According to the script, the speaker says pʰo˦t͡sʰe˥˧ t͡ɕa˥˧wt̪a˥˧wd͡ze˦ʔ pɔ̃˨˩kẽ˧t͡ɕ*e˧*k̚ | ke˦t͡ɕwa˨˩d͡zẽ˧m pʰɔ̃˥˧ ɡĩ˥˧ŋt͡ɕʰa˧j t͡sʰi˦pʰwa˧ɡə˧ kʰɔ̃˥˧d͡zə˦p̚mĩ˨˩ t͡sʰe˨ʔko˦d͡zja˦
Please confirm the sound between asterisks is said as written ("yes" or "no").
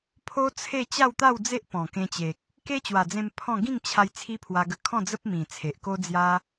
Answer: no